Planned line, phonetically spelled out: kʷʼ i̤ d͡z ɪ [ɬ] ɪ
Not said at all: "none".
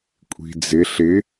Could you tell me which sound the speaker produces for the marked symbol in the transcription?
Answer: ɬ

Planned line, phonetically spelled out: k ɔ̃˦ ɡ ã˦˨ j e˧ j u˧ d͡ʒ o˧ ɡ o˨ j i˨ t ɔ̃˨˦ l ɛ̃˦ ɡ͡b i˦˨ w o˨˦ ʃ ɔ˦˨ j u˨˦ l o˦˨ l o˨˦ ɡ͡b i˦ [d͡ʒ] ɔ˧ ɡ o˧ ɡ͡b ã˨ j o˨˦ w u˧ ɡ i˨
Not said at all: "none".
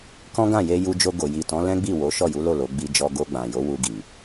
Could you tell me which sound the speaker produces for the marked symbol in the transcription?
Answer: d͡ʒ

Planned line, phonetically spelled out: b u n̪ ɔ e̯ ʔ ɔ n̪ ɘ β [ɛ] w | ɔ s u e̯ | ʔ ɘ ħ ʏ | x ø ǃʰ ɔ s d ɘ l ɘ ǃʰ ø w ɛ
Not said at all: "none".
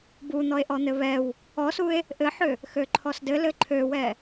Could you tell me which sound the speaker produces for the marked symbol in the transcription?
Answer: ɛ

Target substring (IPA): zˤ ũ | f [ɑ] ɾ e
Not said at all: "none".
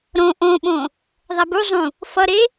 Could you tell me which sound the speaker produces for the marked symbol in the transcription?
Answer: ʌ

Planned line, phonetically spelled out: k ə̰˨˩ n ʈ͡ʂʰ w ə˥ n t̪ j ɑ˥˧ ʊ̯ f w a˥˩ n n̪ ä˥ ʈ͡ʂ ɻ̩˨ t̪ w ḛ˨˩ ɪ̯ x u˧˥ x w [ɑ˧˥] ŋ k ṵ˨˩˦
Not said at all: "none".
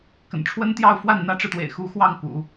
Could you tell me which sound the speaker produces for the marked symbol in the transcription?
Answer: ɑ˥˩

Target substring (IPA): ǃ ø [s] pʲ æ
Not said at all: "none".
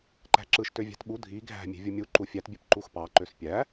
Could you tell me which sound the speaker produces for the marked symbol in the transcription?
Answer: s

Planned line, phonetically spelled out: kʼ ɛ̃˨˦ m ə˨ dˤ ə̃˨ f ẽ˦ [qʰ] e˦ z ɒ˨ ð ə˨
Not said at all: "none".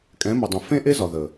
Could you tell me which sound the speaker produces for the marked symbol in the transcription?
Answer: ʔ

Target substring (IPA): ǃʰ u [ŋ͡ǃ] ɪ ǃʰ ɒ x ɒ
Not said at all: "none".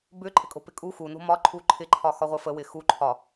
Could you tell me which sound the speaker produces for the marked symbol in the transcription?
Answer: ǃʰ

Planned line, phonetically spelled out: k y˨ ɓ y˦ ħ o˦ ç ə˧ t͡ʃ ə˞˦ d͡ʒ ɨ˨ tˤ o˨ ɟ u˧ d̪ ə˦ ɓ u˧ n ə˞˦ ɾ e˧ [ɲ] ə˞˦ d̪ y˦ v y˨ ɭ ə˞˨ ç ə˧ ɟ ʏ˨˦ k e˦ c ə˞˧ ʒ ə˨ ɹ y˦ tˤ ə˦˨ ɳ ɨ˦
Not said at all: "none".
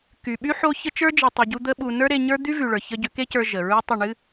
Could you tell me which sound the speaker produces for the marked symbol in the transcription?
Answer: ɲ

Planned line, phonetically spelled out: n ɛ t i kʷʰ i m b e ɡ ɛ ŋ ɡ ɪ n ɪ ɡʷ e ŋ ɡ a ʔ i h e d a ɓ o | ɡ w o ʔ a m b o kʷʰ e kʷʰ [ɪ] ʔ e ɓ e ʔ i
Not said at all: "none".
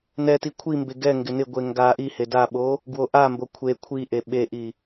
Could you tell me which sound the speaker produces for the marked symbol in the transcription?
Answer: i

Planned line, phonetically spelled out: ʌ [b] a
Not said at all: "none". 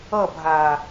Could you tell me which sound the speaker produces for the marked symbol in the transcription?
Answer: bʱ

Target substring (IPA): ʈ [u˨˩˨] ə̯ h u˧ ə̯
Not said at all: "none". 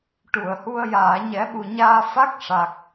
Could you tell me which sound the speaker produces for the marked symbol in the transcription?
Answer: u˨˩˨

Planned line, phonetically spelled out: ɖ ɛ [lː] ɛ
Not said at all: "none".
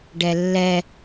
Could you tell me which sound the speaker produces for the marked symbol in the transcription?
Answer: lː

